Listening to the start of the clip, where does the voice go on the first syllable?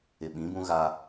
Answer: low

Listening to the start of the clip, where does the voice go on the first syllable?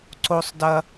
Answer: high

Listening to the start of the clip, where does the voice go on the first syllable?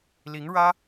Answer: rising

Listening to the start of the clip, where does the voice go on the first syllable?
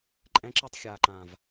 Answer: high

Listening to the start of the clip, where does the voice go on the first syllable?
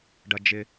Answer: high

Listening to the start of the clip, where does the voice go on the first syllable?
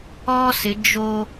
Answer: high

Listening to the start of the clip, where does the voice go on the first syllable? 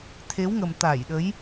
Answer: rising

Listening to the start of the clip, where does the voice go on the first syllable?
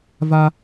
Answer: high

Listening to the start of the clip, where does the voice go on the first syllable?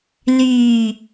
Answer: low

